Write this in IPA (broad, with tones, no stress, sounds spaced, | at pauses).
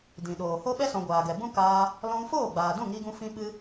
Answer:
d ĩ˨ ɗ oː˨ h o˦ ɓ ɛ˦ s ɔ̃˨ ɡʷ aː˨ ɡ ɛ˨ b ũ˦ k aː˧ | l ɔ̃˧ ŋ f oː˦˨ ɡ͡b aː˨ d ũ˦˨ ŋ i˧ ɡ ũ˧ f ĩ˧ ɓ ɨ˧